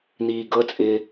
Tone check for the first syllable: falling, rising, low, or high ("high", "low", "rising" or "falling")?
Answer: low